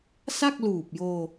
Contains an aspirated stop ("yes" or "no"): no